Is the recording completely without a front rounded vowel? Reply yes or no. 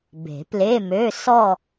no